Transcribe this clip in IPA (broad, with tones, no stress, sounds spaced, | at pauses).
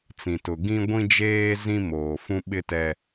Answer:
t͡s ĩ˨ t ʊ˨ ɡ ĩ˦ ɡʷ ĩ˦ d͡ʒ eː˦ z ĩ˦ m oː˨ f ũ˦ ɓ ɪ˦ t ɛ˦